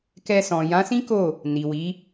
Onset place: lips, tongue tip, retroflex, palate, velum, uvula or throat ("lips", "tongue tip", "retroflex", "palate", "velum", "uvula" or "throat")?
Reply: velum